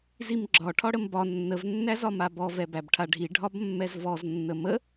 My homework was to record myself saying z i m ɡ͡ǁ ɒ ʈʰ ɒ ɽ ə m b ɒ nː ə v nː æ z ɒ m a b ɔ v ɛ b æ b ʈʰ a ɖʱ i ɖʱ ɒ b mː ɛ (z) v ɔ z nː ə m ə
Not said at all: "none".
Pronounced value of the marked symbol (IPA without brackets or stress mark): z